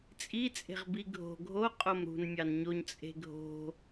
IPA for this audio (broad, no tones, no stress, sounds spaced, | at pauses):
t͡sʼ i t͡sʼ e̤ ʁ b i ɡʱ o̤ ɡʱ o qʼ o m ɾ ṳ n mʲ ɑ n ɲ o ɲ t͡sʼ e̤ ɡʱ o̤